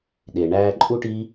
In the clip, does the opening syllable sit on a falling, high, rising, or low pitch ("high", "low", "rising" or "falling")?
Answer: low